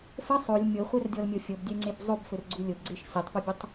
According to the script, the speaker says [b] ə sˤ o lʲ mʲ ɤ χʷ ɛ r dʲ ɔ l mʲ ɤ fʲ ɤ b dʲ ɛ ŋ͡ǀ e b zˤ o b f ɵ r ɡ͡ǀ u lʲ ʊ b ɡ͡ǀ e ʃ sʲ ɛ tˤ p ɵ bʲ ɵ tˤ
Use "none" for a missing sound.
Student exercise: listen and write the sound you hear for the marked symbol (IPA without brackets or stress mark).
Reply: f